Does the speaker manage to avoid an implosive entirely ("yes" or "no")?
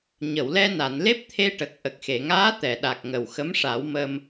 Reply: no